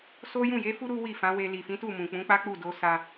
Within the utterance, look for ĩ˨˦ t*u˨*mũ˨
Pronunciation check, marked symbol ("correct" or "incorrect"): incorrect